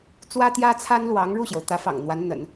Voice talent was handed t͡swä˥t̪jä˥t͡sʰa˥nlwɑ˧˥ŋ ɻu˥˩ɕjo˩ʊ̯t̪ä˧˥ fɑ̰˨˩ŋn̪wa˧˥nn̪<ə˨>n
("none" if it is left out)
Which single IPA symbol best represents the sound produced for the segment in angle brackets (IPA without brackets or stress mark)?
ə̰˨˩˦